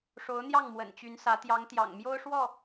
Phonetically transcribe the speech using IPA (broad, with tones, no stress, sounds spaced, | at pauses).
ʂ o˧˥ ʊ̯ n̪ j ɑ˥˩ ŋ m w ə̰˨˩ n t͡ɕ y˧˥ n s ä˧˥ t̪ j ɑ˧˥ ŋ t̪ j ɑ̰˨˩ ŋ m j o˥ ʊ̯ ʂ w ɔ˥˩